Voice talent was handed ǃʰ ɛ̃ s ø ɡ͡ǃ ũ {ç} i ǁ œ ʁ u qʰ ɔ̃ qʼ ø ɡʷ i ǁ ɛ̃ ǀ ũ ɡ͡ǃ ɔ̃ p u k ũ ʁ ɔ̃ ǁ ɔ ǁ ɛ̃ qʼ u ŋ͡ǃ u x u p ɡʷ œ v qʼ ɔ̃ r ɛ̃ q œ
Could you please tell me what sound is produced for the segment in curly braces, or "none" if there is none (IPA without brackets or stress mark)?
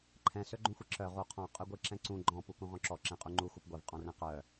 xʷ